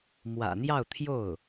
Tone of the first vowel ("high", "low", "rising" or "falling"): low